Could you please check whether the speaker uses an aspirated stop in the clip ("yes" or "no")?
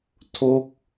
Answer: yes